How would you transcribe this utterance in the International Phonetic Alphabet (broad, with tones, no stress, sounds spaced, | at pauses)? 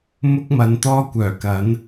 m ʊ˥ k̚ m ɐ˨˧ n t̪ ɔː˥ kʷ œː˨˩ k ɐ˨˥ n